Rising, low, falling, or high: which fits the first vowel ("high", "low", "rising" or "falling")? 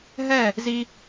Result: falling